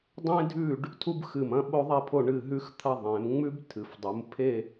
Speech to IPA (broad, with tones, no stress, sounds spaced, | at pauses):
dˤ ẽ˥ dʱ ʉ˥˧ ɖ | tʰ u˥ b x ɨ˧˩ m ɐ̃˥ ɓ o˥ ðˤ i˥˧ pʰ o˥˧ ɳ ɨ˥˧ ɦ ʉ˥ x t̪ʰ ɐ˥˧ ðˤ ẽ˩˧ m ŋ͡m ʉ˥ b tʰ ɨ˩˧ f dˤ u˩˧ m pʰ e˥˧